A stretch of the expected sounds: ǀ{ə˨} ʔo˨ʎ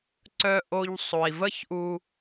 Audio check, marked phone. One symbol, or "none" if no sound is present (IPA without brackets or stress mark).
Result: œ˨